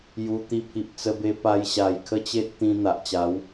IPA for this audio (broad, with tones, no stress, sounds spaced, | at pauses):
j u˧ t̪ i˧ pʰ i˨ p̚ t͡s ə˧ b e˧ p a˧ j ɕ a˨˩ j kʰ ə˦ t͡ɕ e˦ t̚ t̪ ĩ˧ n̪ a˨ ʔ t͡ɕ a˨˦ w